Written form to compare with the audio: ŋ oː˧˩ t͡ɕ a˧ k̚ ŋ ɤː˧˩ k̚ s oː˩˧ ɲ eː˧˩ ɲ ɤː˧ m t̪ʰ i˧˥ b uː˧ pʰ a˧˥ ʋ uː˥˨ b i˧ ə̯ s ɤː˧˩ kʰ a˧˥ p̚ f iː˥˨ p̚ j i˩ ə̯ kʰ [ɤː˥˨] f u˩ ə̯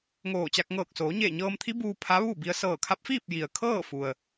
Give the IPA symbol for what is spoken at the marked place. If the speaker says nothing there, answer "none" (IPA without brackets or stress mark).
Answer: ɤː˥˨